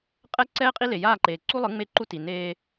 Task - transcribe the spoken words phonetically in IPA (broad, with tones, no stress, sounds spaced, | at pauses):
qʼ ɛ˦ ǀ ɛː˦ qʼ i˦ l e˨ j aː˦˨ ǃ eː˨ ǀ u˦ lˠ ɯ˨˦ ŋ͡m e˦ ǃ u˦ t i˨ n eː˦